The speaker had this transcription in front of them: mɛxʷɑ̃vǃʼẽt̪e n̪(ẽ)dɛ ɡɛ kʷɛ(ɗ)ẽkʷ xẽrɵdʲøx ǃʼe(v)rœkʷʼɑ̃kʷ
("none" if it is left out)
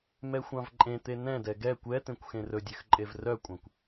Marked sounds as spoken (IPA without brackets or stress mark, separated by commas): ɛ̃, t̪, v